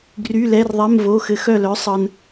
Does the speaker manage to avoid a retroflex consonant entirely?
yes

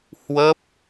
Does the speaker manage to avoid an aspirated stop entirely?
yes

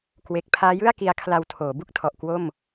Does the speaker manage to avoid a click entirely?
yes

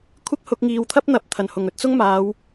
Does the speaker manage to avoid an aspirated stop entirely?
no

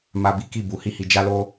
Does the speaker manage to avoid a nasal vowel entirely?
yes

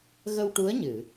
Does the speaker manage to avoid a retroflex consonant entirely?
no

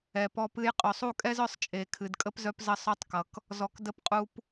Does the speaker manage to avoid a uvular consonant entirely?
no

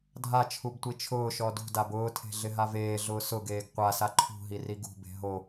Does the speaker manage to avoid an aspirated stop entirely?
no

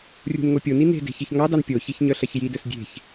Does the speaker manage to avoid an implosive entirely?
yes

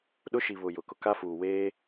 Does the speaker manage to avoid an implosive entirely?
no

